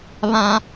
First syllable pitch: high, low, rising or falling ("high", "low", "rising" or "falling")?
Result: high